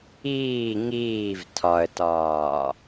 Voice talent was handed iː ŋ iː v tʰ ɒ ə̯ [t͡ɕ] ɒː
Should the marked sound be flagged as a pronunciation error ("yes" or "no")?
yes